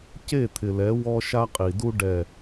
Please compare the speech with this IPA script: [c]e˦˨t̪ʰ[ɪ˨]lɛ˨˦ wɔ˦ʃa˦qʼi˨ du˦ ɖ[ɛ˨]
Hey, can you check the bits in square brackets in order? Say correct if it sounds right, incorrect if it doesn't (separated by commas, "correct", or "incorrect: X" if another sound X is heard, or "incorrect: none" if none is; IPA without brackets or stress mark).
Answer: correct, correct, correct